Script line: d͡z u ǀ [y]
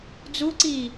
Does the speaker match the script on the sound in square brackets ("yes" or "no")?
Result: no